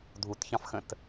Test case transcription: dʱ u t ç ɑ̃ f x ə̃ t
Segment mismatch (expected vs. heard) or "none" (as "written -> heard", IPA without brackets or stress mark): none